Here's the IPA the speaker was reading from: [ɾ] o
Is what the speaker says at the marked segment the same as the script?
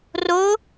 no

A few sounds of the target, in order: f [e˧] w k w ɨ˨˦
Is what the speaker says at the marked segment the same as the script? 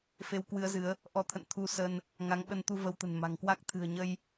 yes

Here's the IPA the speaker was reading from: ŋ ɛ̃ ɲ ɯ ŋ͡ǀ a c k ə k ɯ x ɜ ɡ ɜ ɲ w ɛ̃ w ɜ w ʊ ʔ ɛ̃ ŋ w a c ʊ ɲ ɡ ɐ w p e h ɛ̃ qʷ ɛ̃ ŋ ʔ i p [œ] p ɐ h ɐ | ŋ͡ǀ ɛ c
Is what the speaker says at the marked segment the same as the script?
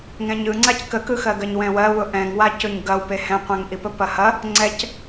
no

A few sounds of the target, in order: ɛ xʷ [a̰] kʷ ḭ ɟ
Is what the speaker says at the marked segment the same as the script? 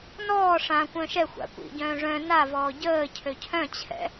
yes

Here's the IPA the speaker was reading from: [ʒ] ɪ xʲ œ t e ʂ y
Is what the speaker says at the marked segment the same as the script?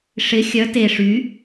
no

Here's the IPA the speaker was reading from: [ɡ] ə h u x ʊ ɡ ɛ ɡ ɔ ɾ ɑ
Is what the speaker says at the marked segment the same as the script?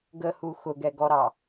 yes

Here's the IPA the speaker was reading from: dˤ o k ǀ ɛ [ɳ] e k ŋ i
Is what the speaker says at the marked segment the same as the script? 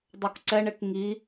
yes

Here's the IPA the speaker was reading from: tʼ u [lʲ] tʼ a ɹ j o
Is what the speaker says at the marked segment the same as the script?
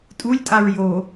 yes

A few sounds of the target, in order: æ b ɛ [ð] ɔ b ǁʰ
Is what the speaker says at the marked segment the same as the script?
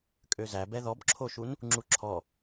yes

